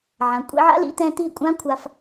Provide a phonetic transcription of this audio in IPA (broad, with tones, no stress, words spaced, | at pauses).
ʕã˨kʷʼḭ˧ʕa̰˦lḭ˨˦ t̪ɛ̃˧t̪i˦˨kʷʼã˦kʷʰa˧f